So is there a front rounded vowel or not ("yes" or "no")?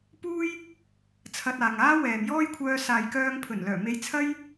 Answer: yes